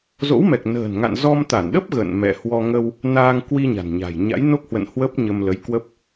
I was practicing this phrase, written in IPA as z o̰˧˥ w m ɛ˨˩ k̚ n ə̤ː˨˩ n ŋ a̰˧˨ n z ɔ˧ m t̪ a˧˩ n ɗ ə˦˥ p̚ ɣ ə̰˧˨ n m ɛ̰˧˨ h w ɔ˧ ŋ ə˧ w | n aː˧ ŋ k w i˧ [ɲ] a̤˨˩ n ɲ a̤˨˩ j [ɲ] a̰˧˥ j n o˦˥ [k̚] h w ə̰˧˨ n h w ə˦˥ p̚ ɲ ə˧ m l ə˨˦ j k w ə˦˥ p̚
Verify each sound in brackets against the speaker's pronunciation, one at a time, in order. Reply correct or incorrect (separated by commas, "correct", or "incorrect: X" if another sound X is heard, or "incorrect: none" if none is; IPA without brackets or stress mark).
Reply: correct, correct, correct